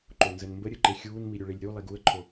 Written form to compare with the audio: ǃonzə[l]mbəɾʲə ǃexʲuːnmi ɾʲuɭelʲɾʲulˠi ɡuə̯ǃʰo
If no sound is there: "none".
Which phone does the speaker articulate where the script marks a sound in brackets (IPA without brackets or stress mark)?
n